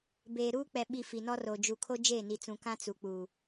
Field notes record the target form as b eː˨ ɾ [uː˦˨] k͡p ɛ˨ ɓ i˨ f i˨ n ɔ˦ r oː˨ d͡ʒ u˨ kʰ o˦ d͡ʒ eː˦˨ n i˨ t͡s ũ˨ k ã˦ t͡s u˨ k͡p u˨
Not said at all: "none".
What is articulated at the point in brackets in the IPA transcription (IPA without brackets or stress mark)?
uː˦